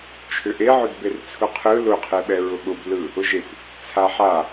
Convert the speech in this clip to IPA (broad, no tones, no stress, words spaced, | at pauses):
t͡ʃʰʏʔeʕʊd bert͡sʰʊqʰɯ lʊqʰeɓɛ ɹʊɠʊblɯ | ʊʒekʷ | t͡sʰaħa